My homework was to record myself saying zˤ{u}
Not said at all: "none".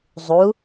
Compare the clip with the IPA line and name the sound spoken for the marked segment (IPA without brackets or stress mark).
u